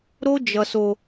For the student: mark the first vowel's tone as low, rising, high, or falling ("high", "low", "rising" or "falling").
high